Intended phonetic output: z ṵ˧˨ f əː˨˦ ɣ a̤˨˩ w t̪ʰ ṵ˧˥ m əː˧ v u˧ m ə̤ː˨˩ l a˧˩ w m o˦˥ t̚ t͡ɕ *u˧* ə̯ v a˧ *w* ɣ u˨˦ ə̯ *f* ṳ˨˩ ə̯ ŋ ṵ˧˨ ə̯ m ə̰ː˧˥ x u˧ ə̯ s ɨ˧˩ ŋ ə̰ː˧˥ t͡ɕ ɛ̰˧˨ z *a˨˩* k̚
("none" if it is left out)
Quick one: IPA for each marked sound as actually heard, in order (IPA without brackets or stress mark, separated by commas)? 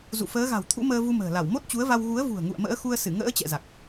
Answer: u˨˦, w, v, a˨˩